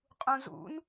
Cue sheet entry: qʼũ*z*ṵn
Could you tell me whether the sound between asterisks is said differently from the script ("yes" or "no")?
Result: no